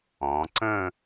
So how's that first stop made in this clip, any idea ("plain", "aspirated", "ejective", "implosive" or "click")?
click